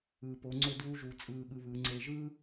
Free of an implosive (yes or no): no